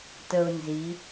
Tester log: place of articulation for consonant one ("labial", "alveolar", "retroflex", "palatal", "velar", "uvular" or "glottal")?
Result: alveolar